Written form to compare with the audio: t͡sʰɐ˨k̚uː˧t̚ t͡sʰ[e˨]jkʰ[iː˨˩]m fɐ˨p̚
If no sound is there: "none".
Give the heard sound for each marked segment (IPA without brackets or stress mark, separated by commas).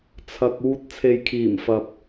e˨, iː˨˩